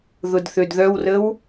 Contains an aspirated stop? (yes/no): no